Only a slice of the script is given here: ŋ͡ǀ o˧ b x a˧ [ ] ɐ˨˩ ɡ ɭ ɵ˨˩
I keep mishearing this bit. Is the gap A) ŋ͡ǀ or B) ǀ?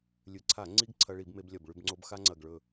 A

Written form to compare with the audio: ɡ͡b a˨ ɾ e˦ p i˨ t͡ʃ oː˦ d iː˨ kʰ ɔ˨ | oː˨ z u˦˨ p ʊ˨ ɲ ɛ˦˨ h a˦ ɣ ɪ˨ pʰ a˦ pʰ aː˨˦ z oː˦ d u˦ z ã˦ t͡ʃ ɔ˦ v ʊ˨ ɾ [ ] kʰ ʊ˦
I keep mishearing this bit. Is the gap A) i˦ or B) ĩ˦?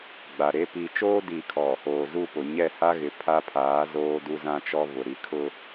A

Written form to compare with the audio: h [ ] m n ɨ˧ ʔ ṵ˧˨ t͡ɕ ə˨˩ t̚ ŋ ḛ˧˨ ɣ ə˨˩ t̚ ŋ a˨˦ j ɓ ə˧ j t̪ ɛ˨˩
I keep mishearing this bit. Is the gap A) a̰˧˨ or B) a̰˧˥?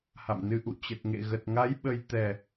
A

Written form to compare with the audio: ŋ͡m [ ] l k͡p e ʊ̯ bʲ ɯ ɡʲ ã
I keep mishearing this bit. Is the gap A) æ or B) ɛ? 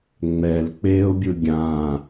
B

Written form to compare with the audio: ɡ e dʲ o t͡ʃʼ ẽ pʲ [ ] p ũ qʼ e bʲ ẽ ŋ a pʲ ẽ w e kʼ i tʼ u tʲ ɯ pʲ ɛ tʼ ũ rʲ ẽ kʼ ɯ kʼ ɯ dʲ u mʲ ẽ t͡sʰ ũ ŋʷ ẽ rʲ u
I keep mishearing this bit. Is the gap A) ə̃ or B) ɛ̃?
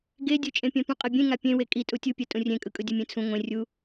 B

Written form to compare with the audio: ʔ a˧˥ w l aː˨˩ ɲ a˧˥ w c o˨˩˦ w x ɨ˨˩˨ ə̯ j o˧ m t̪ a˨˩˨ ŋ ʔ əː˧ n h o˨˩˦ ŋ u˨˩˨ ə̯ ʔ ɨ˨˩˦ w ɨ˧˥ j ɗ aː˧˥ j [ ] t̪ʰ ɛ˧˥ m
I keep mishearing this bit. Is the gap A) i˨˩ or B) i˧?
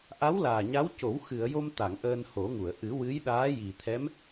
A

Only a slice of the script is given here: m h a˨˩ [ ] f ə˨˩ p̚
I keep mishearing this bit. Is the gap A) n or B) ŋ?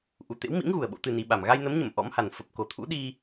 A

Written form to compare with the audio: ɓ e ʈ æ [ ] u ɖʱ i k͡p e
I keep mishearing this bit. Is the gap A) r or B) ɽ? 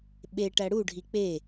B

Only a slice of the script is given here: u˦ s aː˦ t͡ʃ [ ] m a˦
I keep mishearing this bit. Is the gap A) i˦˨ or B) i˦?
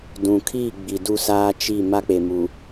A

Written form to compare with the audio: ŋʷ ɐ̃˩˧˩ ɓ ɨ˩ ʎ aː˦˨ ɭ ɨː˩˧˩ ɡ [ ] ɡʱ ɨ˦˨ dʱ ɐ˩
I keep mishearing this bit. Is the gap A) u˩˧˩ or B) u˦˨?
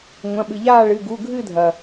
A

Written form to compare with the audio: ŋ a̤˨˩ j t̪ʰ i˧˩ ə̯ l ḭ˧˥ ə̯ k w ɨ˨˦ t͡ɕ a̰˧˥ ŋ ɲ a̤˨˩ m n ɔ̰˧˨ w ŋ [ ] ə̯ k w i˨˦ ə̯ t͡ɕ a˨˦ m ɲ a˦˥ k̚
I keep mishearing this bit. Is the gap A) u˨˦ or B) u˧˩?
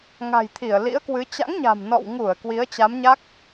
B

